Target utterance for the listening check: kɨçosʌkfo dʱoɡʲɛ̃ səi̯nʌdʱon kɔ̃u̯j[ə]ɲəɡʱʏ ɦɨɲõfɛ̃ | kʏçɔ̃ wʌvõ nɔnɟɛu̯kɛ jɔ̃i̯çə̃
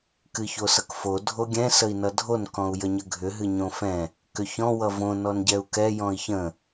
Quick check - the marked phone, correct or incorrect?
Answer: correct